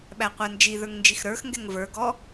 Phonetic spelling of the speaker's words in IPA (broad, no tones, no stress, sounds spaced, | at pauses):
ɓ æ qʷ æ n d͡ʒ i ð ə˞ ŋ n d͡ʒ i x ɾ ə˞ x ŋ ɡ ɛ ŋ v ə˞ ɡ ɔ